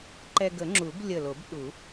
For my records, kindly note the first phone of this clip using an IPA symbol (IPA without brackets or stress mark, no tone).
ǃ